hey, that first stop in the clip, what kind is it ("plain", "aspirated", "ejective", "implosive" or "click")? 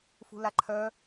click